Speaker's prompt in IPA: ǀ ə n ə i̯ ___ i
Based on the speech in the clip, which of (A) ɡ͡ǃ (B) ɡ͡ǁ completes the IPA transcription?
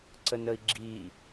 B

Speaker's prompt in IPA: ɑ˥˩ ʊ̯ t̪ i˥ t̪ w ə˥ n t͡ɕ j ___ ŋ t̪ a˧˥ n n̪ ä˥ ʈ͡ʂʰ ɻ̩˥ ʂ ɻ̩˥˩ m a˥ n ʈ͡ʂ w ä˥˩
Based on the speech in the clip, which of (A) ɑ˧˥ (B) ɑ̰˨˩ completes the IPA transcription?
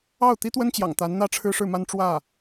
B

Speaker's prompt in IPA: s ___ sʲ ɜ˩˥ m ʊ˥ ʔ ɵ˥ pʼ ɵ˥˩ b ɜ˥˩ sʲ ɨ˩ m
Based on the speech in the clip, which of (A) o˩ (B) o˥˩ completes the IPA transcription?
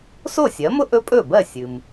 B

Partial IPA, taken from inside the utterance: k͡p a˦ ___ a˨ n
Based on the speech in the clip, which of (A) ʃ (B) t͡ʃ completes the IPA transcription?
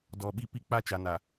B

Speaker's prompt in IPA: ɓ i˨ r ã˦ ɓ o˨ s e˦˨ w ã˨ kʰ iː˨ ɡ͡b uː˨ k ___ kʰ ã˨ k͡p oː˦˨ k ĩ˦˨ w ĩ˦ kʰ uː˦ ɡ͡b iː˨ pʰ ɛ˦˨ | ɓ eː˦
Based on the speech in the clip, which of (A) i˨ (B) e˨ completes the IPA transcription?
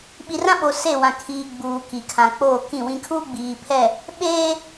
A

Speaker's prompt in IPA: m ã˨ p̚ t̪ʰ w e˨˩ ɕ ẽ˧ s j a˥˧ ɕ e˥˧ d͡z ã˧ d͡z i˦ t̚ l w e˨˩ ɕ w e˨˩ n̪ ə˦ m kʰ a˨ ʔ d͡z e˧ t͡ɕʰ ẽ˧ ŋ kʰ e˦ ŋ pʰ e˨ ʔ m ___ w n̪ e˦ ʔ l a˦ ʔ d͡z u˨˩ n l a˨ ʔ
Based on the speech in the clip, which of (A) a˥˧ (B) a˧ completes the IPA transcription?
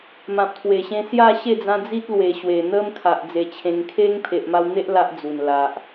B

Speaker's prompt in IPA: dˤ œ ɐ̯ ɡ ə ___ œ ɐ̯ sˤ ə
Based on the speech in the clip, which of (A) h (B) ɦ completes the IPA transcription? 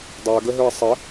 B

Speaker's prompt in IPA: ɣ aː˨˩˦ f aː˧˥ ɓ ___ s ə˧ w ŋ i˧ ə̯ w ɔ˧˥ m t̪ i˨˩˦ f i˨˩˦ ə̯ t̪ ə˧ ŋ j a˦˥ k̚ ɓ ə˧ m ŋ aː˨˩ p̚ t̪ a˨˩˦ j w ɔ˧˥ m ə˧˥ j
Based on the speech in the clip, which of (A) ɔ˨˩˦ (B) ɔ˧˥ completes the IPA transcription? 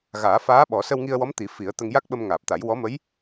A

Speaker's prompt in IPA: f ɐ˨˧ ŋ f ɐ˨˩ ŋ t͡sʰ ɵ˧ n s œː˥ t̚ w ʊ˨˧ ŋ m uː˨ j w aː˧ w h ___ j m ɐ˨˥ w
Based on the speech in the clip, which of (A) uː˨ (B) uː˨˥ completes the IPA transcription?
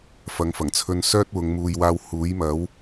B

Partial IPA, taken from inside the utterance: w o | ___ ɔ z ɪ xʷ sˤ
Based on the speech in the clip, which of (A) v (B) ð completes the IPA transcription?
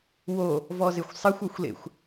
A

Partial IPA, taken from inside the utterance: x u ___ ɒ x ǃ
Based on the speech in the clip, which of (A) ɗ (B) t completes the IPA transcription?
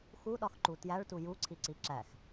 A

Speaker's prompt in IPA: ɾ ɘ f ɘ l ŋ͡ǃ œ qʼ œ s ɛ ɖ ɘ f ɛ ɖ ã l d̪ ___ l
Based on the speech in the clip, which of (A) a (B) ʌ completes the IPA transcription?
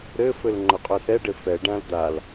A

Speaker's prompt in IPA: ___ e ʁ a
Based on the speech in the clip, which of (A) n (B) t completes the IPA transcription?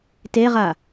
B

